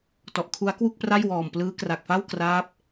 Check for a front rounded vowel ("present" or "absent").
absent